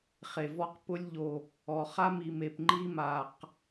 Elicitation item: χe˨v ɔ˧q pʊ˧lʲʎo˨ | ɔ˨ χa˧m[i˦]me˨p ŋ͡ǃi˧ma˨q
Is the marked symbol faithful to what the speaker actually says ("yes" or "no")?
no